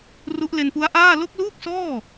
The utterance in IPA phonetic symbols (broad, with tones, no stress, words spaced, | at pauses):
ru˦˥ʔle˧npu˦˥a̯ʔaː˥˩ lo˦˥k̚luː˥˩k̚sɔː˥˩